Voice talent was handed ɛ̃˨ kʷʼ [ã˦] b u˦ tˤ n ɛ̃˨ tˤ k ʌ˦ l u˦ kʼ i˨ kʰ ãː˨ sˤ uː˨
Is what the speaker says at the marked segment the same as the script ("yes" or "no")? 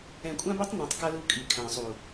yes